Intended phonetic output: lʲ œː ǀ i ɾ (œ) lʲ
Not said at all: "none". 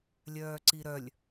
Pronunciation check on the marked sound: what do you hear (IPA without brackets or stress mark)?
œ